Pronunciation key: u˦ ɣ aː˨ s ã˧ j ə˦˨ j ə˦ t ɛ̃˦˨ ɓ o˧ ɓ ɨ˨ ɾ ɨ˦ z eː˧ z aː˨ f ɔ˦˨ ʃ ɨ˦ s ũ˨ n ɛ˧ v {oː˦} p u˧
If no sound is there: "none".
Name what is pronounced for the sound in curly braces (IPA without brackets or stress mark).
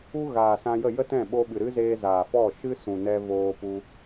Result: oː˧